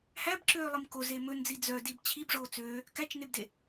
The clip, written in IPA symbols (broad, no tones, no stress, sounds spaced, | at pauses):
h æ b ǁ øː lˠ i m k o z e m ɵ n d͡z i d͡z œ d i b t͡ɕʰ i b ʐ oː t͡s øː | k æ t͡ʃ n e b d e